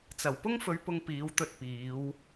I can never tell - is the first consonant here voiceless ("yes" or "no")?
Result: yes